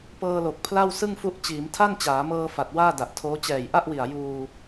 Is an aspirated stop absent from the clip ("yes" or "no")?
no